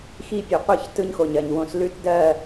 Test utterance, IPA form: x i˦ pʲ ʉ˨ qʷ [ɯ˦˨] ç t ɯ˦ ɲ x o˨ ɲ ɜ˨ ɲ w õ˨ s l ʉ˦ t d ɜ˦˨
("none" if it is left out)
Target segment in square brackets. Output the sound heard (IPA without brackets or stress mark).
ɯ˦˨